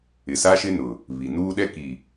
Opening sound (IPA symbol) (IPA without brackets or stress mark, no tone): ɪ